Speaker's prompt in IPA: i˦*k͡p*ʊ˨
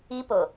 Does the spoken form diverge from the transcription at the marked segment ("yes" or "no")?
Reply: yes